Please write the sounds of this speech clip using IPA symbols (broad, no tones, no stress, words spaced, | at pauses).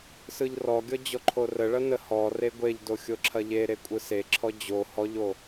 sɯʎrɔɡʲɔ d͡ʑɔǃʰorəɭɐ nəhɔre ɡʷeʎdo xʲoǁʰɐʎeɾe kʷʼɯseǁʰɔ d͡ʑo hɔʎo